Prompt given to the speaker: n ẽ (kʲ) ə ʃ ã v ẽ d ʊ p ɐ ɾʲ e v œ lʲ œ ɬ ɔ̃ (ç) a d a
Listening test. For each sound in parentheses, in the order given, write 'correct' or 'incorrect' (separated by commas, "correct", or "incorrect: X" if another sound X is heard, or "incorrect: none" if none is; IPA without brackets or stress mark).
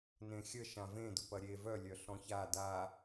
incorrect: xʲ, correct